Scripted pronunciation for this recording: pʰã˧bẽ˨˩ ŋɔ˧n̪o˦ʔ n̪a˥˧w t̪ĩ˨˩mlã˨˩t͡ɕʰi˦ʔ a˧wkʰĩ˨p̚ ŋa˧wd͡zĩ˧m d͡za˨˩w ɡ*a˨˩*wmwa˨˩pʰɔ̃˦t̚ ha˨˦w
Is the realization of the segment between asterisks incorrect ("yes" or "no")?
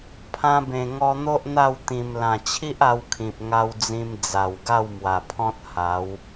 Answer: yes